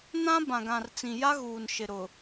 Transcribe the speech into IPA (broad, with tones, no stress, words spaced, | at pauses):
nã˦ bã˨ɡã˨rt͡sĩ˨ja˦ ɣuː˨n ʃɪ˨ɾʊ˨